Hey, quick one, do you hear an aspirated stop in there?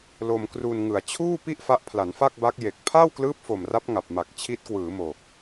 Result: yes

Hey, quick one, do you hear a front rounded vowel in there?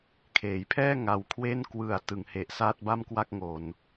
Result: no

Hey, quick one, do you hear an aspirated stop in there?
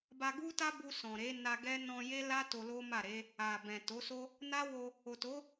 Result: no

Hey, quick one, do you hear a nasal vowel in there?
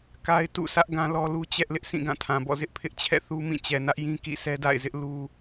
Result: yes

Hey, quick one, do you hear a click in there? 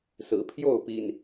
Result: no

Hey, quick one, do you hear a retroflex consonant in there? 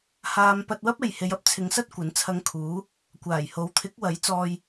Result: no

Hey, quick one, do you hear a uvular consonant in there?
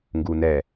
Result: no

